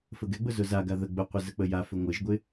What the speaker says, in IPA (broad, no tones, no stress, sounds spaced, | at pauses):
f ə ɡ ɛ ɡ͡b ʊ z ʊ z a ɡ a ð ə ɡ͡b ʊ qʷ ɪ z ə k͡p ə j a f ʏ ŋʷ ɪ ʒ ɡʷ ɪ